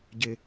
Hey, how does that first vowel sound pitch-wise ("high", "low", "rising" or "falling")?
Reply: low